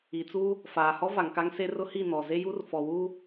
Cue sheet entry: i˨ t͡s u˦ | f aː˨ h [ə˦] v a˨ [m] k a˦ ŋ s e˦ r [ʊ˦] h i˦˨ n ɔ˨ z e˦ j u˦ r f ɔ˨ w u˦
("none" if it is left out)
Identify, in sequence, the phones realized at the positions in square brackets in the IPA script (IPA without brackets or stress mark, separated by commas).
ɔ˦, ŋ, ʊ˦